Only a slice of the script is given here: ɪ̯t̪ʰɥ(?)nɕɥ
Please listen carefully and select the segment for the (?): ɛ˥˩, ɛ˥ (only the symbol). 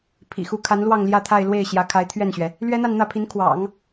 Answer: ɛ˥˩